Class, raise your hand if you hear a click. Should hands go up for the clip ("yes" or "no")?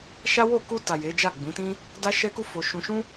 no